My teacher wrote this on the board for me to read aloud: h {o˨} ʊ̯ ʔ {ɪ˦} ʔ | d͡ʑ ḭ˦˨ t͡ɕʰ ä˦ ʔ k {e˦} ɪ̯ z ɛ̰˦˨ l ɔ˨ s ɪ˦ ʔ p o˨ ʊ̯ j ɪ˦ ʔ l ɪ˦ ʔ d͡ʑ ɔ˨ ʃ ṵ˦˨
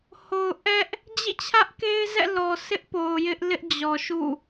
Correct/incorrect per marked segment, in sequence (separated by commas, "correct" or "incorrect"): correct, incorrect, correct